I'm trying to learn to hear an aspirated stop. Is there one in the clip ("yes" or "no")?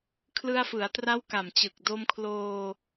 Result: yes